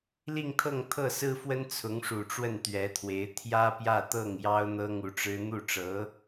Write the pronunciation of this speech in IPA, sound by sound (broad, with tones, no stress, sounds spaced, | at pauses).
l i˥˧ ŋ t̪ʰ ɤ˥˧ ŋ t̪ʰ ɤ˥˩ s ɹ̩˥ f w ə˥ n t͡sʰ ʊ˧˥ ŋ ʂ u˨˩ ʈ͡ʂ w ə˥˩ n t̪ ɥ ɛ˧˥ t̪ʰ w e˧˥ ɪ̯ t̪ʰ j ä˥ p j ä˥˧ t̪ ɤ˥˩ ŋ j ɑ˥ ʊ̯ n̪ ɤ˥ ŋ u˧˥ ʈ͡ʂ ɻ̩˥ n̪ u˥˩ ʈ͡ʂ ɤ˧˥